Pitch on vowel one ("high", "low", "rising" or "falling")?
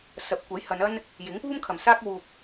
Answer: rising